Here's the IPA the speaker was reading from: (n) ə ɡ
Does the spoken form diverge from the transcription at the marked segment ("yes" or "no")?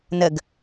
no